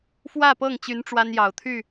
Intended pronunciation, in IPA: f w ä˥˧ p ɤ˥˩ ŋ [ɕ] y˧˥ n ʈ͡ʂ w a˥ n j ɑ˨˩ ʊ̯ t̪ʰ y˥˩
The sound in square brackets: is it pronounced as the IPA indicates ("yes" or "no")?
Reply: no